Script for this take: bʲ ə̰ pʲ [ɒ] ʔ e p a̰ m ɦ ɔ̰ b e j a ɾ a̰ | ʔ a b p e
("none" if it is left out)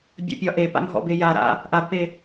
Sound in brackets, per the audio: ɒ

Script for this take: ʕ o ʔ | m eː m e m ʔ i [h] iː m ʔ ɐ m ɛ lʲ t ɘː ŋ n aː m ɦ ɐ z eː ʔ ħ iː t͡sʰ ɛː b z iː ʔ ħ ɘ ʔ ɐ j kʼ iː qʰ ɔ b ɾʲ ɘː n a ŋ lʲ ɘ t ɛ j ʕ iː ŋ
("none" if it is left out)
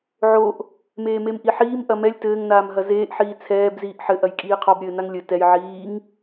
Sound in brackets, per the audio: ħ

